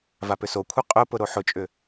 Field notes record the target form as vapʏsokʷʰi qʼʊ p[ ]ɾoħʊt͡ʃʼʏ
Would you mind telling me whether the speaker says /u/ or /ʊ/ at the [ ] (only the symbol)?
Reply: ʊ